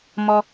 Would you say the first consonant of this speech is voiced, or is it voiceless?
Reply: voiced